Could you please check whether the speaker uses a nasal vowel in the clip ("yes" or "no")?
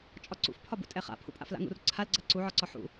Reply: no